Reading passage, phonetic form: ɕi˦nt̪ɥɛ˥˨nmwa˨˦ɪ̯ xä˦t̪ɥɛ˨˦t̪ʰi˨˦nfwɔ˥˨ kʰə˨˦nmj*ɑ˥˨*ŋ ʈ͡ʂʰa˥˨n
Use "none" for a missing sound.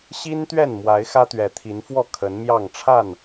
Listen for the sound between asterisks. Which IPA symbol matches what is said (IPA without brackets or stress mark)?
ɑ˥˨